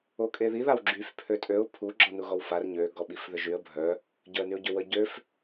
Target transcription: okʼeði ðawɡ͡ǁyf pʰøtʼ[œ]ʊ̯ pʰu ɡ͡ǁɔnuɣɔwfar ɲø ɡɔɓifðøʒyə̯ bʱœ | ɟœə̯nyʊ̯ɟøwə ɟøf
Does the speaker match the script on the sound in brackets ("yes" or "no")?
no